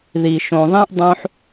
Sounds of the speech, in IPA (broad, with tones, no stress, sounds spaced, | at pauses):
ð i˨ ʃ õ˨ ðˤ ẽ˦ ʔ dˤ õ˦ ħ